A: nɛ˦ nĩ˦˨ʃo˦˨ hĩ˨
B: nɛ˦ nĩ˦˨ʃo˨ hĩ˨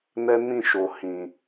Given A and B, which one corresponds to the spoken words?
B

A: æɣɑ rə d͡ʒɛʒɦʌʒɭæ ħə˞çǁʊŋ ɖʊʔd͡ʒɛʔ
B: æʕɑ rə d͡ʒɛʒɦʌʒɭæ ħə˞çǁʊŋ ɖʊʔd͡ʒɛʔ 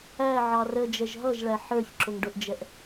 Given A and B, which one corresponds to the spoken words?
B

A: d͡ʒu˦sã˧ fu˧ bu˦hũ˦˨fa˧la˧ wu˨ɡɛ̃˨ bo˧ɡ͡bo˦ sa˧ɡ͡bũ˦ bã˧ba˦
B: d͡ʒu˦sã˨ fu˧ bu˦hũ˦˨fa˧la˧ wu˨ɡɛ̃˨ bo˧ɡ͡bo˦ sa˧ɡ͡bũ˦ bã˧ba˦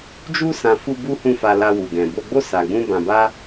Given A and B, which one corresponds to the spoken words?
A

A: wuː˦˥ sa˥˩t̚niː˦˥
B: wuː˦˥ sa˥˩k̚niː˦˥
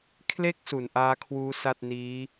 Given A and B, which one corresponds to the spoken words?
A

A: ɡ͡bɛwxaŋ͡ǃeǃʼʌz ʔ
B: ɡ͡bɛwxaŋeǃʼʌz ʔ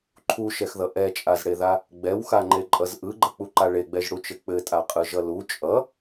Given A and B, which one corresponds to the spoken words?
A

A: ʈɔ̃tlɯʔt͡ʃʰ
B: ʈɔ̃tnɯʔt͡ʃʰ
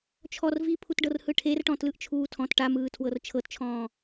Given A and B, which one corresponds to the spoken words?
A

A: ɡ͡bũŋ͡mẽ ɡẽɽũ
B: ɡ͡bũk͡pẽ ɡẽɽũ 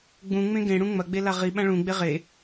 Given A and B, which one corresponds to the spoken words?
A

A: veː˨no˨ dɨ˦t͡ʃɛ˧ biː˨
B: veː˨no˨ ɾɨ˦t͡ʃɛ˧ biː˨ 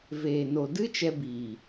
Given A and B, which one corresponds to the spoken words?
A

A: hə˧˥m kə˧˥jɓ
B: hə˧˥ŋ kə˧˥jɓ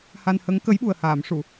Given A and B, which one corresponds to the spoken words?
B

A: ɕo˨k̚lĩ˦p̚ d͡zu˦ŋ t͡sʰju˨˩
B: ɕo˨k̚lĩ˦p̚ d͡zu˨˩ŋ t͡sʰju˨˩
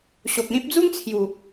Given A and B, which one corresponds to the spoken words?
A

